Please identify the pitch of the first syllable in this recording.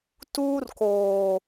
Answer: high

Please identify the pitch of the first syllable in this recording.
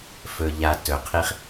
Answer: low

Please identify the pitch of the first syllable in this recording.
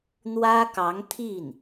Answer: high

